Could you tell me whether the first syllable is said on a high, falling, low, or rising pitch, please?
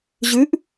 rising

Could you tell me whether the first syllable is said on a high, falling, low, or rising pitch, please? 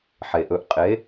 low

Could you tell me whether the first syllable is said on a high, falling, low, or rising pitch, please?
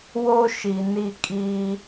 high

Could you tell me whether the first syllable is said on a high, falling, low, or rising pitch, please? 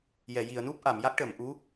low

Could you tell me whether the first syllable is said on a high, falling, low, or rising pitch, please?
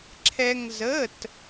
high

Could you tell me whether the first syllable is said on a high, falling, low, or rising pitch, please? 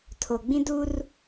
low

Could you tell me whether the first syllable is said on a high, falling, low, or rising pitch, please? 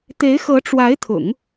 rising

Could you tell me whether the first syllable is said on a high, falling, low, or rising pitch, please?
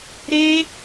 high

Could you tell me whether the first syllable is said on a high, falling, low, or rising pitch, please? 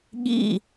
falling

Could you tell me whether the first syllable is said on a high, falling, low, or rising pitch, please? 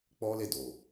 high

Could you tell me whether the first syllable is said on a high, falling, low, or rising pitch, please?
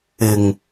low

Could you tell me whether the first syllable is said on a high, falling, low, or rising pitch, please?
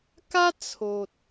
high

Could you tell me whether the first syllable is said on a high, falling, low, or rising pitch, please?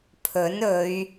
rising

